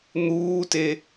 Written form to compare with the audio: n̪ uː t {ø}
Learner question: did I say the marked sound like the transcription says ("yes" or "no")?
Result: no